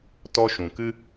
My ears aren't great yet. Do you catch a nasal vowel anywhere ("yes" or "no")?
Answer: yes